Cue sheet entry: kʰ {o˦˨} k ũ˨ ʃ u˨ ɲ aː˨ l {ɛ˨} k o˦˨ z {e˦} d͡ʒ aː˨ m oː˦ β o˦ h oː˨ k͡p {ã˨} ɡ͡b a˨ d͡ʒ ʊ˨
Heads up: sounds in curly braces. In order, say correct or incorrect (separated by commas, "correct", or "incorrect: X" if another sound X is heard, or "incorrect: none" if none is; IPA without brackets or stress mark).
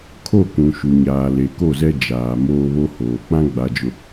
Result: correct, incorrect: e˨, incorrect: ɛ˦, incorrect: ã˦